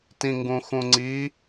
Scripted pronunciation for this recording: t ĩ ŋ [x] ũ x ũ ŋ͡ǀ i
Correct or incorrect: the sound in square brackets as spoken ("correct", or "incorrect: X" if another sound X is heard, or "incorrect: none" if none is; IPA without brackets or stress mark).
incorrect: ɡ